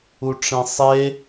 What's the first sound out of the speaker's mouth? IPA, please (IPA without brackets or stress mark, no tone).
u